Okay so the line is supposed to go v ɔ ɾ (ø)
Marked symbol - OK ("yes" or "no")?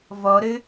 yes